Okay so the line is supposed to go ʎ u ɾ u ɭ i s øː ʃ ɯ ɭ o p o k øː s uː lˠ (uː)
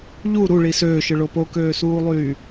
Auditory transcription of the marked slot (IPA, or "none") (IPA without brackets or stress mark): yː